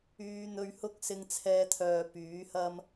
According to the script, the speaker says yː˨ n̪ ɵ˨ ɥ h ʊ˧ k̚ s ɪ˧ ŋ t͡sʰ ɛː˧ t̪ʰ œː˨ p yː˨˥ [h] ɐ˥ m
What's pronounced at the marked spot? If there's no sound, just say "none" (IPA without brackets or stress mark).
h